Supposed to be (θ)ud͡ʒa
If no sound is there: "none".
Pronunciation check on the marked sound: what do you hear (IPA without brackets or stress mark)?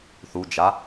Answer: θ